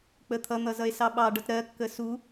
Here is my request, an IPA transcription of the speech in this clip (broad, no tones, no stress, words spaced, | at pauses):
k͡pət̪ʰʌn̪ʌ zʌe̯sɑɓɑɖʌt ɾɜkːə su